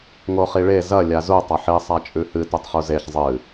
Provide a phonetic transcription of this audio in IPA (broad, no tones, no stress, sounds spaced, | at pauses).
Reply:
ŋ o χ i ɭ e z ɐ lʲ a z u tˤ ɐ ħ i sˤ a t͡ʃʼ ʉ h ɨ t u tˤ χ u z e ç zˤ ɨ